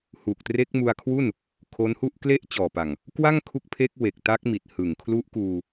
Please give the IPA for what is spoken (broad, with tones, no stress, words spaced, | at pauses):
hu˨˩k̚tre˦˥k̚mu˧a̯kʰwu˥˩n | kʰo˦˥nhu˥˩ʔ kle˥˩ʔ t͡ɕɔː˨˩pa˨˩ŋ | kwa˥˩ŋ kʰu˦˥k̚pʰe˦˥k̚ we˨˩k̚ta˦˥k̚mi˨˩t̚ hɯ˨˩ŋ kʰlu˦˥ʔkuː˧